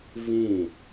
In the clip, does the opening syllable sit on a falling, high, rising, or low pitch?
falling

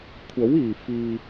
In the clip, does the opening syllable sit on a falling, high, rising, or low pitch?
rising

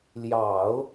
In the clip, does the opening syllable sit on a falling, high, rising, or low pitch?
low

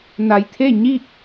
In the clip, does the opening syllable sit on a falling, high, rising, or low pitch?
low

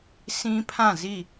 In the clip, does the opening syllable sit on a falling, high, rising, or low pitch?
high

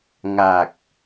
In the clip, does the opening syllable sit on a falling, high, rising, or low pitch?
low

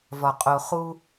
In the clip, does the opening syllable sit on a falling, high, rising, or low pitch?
low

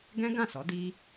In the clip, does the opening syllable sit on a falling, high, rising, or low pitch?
high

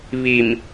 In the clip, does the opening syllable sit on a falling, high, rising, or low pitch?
low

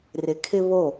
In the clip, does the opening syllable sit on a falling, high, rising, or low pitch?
low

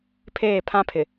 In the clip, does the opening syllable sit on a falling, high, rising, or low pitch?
falling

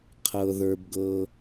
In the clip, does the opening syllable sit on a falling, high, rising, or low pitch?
high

